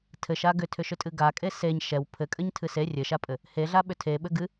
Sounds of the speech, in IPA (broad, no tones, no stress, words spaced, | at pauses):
tʰɘʃa ɡʏtʰʏʃʏtʼɨ ɡakʼe seɲ ʃɛw pʰɘkʼɘɲtʰɨ se rʲɘʃapʼɘ | heɮaɓʏ tʰeɓɘ ɡɨ